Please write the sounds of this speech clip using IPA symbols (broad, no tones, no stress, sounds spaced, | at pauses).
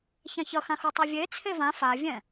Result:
ç ã ç ʌ x ã x u tˤ u vʲ e t͡sʰ e v ã f a vʲ ɛ̃